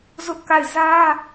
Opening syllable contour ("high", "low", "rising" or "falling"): high